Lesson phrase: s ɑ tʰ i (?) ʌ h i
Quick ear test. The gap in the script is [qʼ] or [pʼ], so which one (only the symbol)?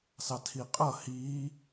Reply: qʼ